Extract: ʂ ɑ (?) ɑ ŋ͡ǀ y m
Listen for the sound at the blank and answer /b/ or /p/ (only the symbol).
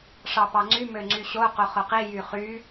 p